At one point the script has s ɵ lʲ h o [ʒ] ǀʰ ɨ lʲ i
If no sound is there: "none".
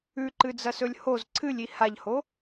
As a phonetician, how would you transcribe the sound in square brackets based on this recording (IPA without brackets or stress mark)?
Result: z